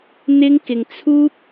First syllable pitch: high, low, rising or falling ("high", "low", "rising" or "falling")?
high